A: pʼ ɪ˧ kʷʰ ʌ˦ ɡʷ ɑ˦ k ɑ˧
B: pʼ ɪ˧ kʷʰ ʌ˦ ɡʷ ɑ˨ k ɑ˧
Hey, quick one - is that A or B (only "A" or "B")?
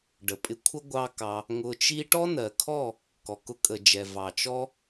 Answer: A